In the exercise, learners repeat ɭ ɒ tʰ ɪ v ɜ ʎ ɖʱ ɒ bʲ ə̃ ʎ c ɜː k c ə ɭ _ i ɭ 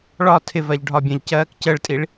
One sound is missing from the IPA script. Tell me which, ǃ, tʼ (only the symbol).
tʼ